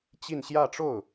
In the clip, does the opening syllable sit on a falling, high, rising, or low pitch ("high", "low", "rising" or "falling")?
falling